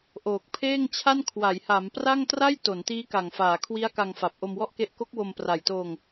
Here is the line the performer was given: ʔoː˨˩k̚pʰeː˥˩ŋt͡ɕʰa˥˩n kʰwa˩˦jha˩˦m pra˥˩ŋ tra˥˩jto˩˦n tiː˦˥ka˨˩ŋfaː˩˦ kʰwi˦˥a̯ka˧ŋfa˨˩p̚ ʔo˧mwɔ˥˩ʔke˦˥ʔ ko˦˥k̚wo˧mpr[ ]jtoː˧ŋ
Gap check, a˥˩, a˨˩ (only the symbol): a˨˩